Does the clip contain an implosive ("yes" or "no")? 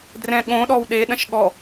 yes